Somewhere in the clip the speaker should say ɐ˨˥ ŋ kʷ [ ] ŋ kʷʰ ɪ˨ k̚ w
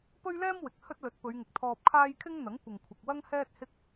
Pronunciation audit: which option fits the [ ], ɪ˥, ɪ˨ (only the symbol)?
ɪ˨